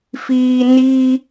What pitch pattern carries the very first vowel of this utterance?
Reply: high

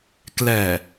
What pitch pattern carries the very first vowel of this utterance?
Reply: low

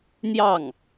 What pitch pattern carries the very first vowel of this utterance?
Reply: falling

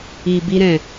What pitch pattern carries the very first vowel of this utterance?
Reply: low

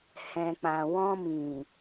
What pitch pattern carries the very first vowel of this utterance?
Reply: low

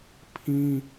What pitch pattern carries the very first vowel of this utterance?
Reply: high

